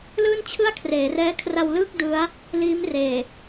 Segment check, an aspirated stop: present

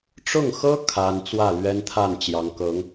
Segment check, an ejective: absent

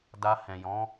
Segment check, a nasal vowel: present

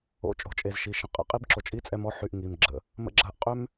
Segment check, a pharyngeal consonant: present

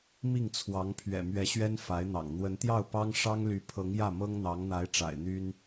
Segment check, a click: absent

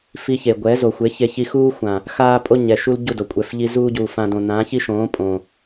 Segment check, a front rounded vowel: absent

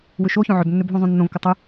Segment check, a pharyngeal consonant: present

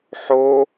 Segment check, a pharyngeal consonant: present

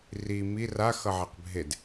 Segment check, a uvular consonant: present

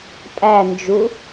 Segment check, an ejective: present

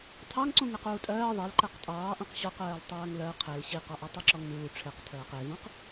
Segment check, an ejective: present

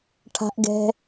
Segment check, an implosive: absent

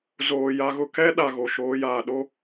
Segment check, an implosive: present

